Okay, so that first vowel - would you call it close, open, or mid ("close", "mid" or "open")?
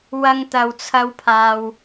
open